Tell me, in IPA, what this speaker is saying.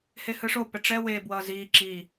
h e h ɯ ʂ o p ɛ ʈ͡ʂ ɛ w e b w ʌː z iː ǁ i

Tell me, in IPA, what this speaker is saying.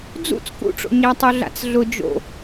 d͡z ṵ t͡s k ṵ ʈ͡ʂ o̰ ɲ æ tˤ o ɮ a̰ t͡s ɮ ʊ d͡ʒ o̰

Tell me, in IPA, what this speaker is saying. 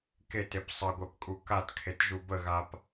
k e t e p sˤ ə ɡʷ ɛ p kʼ u k a t kʰ e t ʒ u b ə ɣ a p

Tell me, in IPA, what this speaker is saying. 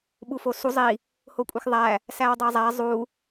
ɓ u f o s u zˤ i | h o kʷʼ i x ðˤ æ | s æ w dˤ e zˤ æ zˤ u

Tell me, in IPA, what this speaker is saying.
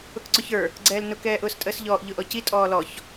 ʊ k ǀ ʊ ç ə˞ | ɡ͡ǀ ɛː l n ʊ k ɛː ʔ ʊː s tʼ əː s ʎ ɔː ʔ ʎ ʊ ʔ ɔ c i tʼ ɔː l ɔ ç

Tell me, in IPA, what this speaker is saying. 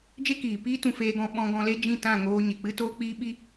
d͡ʒ e˦ k iː˨ p iː˦ t ũ˧ f eː˦ ɡ ɔ̃˦ ɓ ɔ̃˦ ɡ ɔ̃˧ l e˦ d͡ʒ ĩ˦˨ t ã˦˨ ŋ oː˧ ɲ e˨ k͡p ɨ˦ t oː˦ k͡p iː˦ ɓ i˦

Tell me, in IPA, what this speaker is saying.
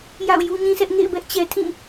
j a̰˦˨ ʊ̯ j u˦ ɲ ĩ˦ s ɛ˦ ʔ ŋ ḛ˦˨ ɪ̯ b ɛ˦ ʔ t͡ɕ ɛ˨ tʰ ĩ˦˨

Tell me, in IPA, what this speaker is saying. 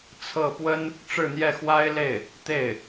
t͡sʰ ɤ˥˩ p w ə˥ n | ʈ͡ʂ ɻ̩˥˧ n̪ j ɛ˥˩ x w a˥ ɪ̯ l e˥˩ ɪ̯ | t̪ e˥˩ ɪ̯

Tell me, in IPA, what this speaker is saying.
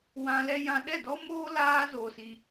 w ã˧ l ɛ˦ j ã˧ ɗ ɛ˦˨ d ɔ˦ m oː˦ l aː˦ z oː˧ s i˧

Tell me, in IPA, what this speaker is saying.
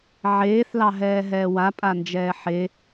ʕ eː θ l ɑ ɦ ɛː ɦ ɛː w a pʼ a n d͡ʒ ɛː ħ e

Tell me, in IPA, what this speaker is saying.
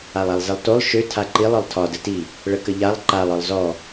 a lˠ a lˠ z ə lˠ t o lˠ ʃ ø tʰ a ǃ i lˠ ɒ lˠ tʰ ɒ d ə t i | ɭ ə k ə ʎ a lˠ ǃ a lˠ ɒ lˠ z ɔ

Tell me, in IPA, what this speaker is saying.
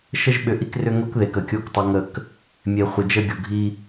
ʃ ə˦ ʒ ɓ ʏ˨ ʔ i˦ k r ʏ˦ ŋ o˦ k ð e˨ k ə˨ kʲ o˦˨ k tˤ o˦ ŋ ə˦˨ k | mʲ e˨ χʷ ə˨ d͡ʒ ə˦ ɡʲ o˨ ɡʱ i˦

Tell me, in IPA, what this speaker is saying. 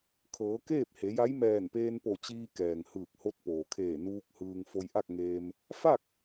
kʰ ɤː˩˧ k eː˥˨ p̚ h e˩˧ j a˧˥ j m ɛː˧˩ n p eː˧ n p o˧˩ t͡ɕ iː˧ k ɛː˩ ŋ h ɯː˧˩ k̚ h o˧˥ t̚ p oː˩ kʰ eː˧˩ n uː˧ k̚ h ɯː˧ ŋ f o˧ j ʔ a˥˨ k̚ ŋ eː˧ m | f a˥˨ k̚

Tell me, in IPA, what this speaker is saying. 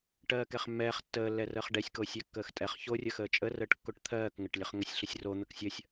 ʈ ɜː k ɛ χ mː ɛː χ tː əː lː ɛ r əː χ ɖ ɛ sʲ k oː sʲ ɛ kː əː x tʼ ɛ χ ç o rʲ ə x əː t͡ʃʼ ə r əː ʈ kː o ʈ t̪ʰ ɜː k ŋ ə ʈ lʲ ə χ ŋ ə sʲ ɬ ə sʲ r o n̪ ə k sʲ ə sʲ

